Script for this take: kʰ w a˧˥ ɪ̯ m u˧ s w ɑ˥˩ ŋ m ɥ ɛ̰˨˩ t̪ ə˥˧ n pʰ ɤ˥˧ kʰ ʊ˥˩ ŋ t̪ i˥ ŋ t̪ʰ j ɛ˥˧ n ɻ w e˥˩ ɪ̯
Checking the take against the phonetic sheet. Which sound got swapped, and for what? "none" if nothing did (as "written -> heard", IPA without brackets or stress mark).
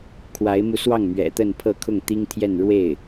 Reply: none